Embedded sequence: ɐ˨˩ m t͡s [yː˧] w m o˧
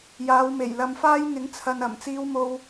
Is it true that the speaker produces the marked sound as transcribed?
no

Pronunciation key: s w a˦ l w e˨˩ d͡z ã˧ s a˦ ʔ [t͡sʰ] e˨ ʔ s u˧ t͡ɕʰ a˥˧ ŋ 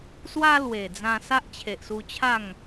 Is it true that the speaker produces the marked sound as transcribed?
no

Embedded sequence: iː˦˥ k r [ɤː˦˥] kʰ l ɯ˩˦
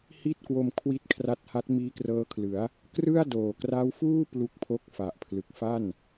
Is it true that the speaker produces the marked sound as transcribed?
yes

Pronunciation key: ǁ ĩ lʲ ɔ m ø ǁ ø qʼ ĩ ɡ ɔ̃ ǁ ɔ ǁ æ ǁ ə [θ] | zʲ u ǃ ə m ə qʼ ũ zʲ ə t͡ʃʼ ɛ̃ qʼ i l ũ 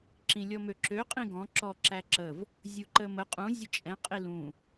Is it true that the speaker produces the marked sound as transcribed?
no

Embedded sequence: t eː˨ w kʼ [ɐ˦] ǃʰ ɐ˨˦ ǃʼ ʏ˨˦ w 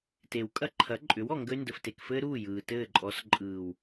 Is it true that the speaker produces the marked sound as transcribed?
yes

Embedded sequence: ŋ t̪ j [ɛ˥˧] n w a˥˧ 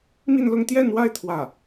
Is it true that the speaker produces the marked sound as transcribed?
yes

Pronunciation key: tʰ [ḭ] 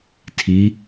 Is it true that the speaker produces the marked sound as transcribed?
no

